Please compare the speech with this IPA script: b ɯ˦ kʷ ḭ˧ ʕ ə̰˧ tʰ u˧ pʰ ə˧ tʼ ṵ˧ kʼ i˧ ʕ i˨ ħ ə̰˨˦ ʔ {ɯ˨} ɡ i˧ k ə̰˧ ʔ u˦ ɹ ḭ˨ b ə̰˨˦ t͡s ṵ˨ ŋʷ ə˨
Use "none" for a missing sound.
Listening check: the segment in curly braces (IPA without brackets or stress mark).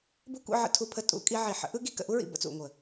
ɯ˦